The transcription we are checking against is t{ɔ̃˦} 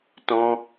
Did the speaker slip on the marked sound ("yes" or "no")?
no